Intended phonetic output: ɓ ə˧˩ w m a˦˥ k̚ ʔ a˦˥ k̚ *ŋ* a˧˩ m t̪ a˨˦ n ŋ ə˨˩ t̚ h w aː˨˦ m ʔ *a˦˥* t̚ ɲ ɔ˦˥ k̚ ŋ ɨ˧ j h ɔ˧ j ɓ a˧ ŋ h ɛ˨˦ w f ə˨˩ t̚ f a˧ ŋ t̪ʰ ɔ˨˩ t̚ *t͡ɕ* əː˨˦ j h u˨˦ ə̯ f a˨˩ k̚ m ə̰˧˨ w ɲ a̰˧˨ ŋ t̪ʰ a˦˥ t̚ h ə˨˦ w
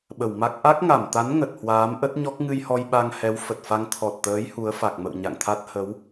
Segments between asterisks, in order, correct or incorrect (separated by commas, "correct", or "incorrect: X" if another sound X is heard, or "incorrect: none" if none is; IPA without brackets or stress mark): correct, incorrect: ə˦˥, incorrect: t̪